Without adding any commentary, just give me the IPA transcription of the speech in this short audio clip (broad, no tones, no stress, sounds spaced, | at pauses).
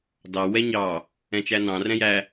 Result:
d ɑ w ɛ ɲ ɑ | ɛ̃ t͡ʃ æ n ɑ̃ r ɛ̃ j æ